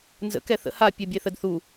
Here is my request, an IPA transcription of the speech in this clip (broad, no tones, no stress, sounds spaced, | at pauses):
n z ə̰ k ɛ θ ə̰ h a pʲ ɛ bʲ e θ ə d θ u